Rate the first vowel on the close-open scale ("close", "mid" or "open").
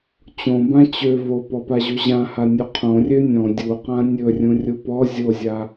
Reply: mid